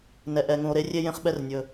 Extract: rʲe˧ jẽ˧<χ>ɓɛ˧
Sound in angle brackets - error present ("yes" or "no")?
no